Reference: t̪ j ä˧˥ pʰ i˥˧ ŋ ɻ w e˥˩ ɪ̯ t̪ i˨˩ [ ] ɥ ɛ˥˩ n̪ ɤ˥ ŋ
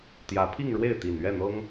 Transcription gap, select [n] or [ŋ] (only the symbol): n